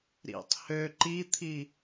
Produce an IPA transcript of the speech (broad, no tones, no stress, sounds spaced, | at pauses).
ɾ ḭ tˤ h ø ǃ i t̪ʰ i